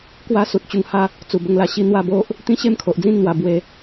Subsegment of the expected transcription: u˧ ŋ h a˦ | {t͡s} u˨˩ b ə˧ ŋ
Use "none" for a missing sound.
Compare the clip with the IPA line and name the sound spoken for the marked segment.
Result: t͡s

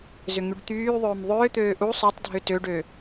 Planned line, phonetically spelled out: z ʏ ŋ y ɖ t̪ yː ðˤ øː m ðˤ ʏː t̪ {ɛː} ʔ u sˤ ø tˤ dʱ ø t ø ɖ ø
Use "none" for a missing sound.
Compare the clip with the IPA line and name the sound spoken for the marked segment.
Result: øː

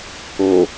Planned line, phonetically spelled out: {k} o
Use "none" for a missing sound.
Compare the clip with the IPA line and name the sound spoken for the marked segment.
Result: k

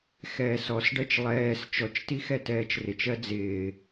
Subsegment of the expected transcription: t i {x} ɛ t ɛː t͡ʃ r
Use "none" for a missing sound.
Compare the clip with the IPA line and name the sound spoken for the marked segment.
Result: x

